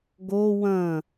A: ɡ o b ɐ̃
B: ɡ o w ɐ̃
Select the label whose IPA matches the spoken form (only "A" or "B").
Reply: B